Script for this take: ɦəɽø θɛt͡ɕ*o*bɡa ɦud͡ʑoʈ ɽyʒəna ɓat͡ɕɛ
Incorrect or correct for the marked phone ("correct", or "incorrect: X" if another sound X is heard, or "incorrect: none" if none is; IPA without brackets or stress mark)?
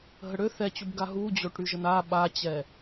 incorrect: u